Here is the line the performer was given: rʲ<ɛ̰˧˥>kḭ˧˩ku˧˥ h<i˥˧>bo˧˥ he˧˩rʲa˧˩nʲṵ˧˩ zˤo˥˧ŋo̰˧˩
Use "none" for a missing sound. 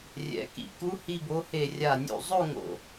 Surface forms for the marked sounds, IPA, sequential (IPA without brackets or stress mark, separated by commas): ɛ̰˨˩˦, i˥˧